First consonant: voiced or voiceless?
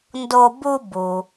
voiced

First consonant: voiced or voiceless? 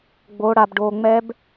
voiced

